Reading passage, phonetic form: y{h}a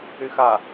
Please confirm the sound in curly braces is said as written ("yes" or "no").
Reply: no